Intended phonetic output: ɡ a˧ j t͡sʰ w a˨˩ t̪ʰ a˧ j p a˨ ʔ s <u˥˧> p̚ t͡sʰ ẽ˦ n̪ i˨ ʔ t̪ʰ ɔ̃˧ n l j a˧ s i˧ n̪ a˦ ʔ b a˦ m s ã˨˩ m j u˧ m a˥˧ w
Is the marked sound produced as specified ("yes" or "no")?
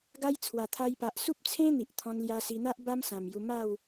no